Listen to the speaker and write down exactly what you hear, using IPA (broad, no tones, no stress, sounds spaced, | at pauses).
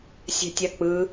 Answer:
sʲ ɛ̤ tʲ a k͡p ɯ